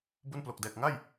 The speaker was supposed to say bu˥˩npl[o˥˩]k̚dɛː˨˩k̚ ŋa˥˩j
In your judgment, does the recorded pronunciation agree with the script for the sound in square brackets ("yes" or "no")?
no